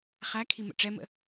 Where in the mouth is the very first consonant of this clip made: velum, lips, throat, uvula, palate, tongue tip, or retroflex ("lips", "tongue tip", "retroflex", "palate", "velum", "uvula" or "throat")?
uvula